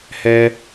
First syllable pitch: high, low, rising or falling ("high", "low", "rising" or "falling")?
high